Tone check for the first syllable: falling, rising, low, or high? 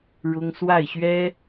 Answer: high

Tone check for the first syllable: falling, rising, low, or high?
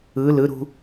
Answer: rising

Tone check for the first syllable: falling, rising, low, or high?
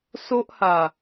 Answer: high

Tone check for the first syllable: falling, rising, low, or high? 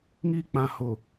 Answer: high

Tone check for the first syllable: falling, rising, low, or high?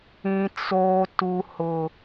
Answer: low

